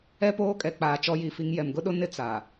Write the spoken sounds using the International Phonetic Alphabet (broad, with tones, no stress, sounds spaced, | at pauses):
ɛ˦ p oː˦ kʼ ɛ˨ k͡p aː˨ t͡ʃ ɔ˦ j i˨ f i˦ ŋ j ɛ˨ m ɡ ʊ˦ ɗ ʊ˦ n ɪ˦ t͡s a˨